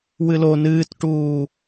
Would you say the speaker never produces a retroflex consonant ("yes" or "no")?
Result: no